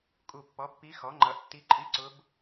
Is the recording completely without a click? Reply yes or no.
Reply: no